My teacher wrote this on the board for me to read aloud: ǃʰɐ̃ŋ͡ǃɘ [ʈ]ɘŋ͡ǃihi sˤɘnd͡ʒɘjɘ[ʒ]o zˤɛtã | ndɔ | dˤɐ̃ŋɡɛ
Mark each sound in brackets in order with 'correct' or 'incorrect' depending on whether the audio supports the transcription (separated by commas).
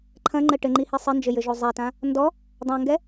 correct, correct